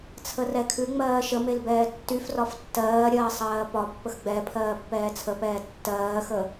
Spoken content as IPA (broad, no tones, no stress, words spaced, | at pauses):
t͡sʰərɛkʰʉ ŋ͡mɜːʃə melbɛːtːyfrɒf tːɜːɾʲɜː sˤɜːpɒpːəx ɡ͡bɛ pʰɜːpːɛːt͡sʰəpɛː tːɜːxə